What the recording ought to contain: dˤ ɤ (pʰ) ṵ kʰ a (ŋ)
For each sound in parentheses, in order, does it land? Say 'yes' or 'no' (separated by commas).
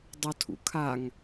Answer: no, yes